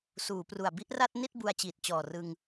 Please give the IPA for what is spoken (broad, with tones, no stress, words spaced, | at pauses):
suː˩˦pru˨˩a̯ bi˥˩ʔra˥˩t̚ni˥˩t̚ bu˧a̯t͡ɕiː˨˩t̚t͡ɕɔː˨˩rɯ˧ŋ